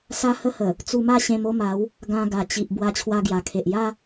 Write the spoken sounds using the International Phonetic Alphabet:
s a˦ h ə˦ h ə˨˩ | t͡s u˧ m a˥˧ ɕ ẽ˧ m o˥˧ m a˨˦ w | ɡ ã˧ ɡ a˨˩ t͡ɕ i˨ ʔ b w a˧ t͡ɕʰ w a˧ ɡ j a˨˩ kʰ e˨ ʔ j a˦

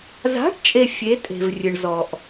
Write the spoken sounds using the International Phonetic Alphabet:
z a̤˨˥ ʈ t͡ʃʼ e˨ fʲ e˨˥ tʼ e̤˨ v rʲ ɨ˨ ɳ z ɔ˨ ʔ

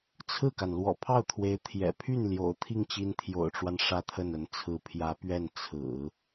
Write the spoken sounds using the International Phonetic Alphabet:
t͡sʰ ɹ̩˥˩ k a˩ n l w ɔ̰˨˩ pʰ ɑ˥˩ ʊ̯ t̪ʰ w e˧˥ ɪ̯ t̪ʰ j ɛ̰˨˩ pʰ y˥˩ n l j o̰˨˩ ʊ̯ t̪ʰ i˥˩ ŋ t͡ɕ i˧˥ n t̪ʰ j o̰˨˩ ʊ̯ ʈ͡ʂ w a˦ n ʂ ä˥˧ t̪ʰ ə˥˩ n ə˧˥ n t͡sʰ ɹ̩˧˥ pʰ j ä˧˥ p ɥ ɛ˥˩ n t͡sʰ ɹ̩˨˩˦

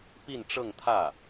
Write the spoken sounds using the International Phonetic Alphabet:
p i˥˧ n ʈ͡ʂ ɤ˥˧ ŋ t̪ʰ ä˥˩

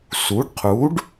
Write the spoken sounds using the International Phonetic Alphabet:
s u˩˥ ɖ qʰ u˩˥ ɖ

